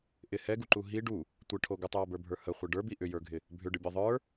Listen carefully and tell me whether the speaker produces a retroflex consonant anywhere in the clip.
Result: yes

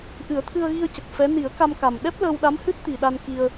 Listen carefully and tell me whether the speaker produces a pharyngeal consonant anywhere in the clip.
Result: no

